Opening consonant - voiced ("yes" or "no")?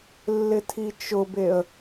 yes